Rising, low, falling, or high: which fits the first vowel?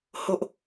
high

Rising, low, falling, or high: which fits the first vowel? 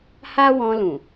high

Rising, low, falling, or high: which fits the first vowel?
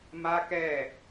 high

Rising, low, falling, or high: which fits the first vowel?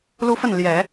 high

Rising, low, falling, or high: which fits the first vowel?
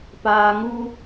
low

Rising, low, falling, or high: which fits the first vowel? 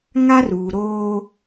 high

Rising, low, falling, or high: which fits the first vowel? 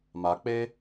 rising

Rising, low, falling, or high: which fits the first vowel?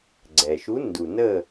low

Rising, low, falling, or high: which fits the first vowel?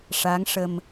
rising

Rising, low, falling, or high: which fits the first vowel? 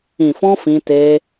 low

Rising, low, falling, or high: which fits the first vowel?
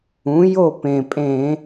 rising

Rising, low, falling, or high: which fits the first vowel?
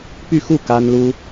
falling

